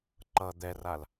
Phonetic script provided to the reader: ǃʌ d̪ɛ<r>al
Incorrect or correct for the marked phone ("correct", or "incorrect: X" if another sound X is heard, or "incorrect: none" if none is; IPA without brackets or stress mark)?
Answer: correct